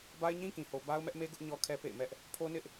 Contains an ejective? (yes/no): no